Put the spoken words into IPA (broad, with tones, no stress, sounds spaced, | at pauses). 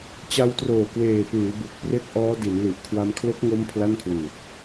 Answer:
t͡ɕ a˧ w t r oː˨˩ k w eː˨˩ p ɯː˩˦ b u˨˩ k̚ p r e˥˩ k̚ ʔ ɔː˦˥ d i˩˦ n l i˨˩ ʔ kʰ w a˧ m kʰ l o˦˥ k̚ ŋ o˦˥ m pʰ l a˥˩ n kʰ w ɯː˨˩ t̚